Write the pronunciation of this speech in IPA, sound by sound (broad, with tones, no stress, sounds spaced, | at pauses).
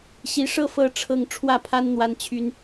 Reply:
ɕ i˧˥ ʂ ɤ˥ f ɤ˥ ʈ͡ʂʰ ɤ˥˧ ŋ ʈ͡ʂʰ w ä˥˩ pʰ a˥ n n̪ w a˥ n t͡ɕʰ y˥ n